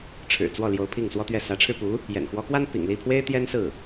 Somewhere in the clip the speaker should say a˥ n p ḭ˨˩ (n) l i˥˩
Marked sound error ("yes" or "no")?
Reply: yes